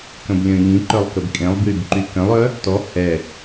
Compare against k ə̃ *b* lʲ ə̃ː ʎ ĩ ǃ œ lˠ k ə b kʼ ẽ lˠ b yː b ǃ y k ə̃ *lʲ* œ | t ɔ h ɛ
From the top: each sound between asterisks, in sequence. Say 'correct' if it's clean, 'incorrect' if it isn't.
correct, incorrect: lˠ

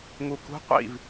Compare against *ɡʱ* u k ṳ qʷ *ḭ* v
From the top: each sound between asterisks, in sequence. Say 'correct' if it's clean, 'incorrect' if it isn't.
incorrect: ŋ, correct

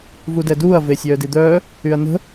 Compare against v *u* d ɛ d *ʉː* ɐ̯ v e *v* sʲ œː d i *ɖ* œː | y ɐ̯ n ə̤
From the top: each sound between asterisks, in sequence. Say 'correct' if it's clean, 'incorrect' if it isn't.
correct, incorrect: uː, incorrect: none, incorrect: d̪

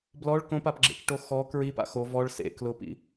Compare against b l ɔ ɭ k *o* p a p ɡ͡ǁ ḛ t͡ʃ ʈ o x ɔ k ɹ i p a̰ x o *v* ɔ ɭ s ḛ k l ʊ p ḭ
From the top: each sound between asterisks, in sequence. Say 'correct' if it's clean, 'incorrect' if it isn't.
incorrect: õ, correct

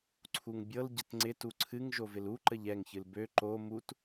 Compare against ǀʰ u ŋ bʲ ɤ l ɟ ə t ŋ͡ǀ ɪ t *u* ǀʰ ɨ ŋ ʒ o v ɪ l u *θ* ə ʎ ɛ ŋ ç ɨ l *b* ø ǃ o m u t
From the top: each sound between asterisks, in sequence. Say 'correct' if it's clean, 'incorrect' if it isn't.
correct, incorrect: ǃ, correct

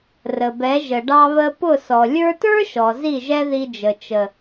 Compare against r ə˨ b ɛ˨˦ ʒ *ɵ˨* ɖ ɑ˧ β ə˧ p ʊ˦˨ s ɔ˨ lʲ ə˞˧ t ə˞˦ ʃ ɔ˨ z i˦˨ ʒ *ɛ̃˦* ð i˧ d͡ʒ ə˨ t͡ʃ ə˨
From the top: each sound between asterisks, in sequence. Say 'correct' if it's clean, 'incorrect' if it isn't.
incorrect: ə˨, incorrect: ɛ˦

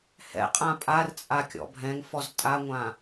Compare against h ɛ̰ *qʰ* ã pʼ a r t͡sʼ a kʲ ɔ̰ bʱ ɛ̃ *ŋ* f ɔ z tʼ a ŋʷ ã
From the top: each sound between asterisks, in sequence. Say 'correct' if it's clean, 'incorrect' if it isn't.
incorrect: qʼ, correct

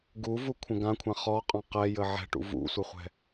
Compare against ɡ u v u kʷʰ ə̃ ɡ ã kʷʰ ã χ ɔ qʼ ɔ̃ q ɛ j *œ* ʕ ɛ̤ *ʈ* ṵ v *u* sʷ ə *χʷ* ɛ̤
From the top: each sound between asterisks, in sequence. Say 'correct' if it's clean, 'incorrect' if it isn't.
incorrect: ə, correct, incorrect: ṵ, correct

